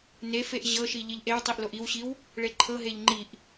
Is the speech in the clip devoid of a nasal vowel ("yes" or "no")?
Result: yes